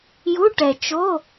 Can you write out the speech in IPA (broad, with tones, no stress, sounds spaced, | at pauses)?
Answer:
j u˧˥˧ ʈ ɛ˨ t͡ʃ o˧˥˧